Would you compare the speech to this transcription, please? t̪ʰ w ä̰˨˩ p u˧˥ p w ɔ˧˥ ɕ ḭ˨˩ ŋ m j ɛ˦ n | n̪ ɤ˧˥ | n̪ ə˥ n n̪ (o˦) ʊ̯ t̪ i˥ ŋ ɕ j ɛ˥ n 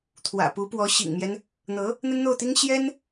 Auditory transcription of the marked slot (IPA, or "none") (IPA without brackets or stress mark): o˥˩